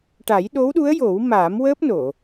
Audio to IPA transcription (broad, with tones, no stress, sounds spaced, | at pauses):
ʈ a˨˩˦ j ɗ o˧˥ w ɗ u˧˥ ə̯ j o˨˩˦ w m aː˨˩˦ m w əː˦˥ p̚ n o˨˩˨